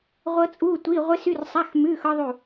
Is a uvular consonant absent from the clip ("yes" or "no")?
no